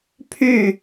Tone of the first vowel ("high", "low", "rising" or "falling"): falling